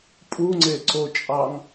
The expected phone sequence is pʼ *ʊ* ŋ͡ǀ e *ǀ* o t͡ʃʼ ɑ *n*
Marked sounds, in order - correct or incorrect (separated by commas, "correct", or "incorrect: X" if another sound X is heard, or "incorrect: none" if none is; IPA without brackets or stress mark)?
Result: incorrect: u, correct, incorrect: ŋ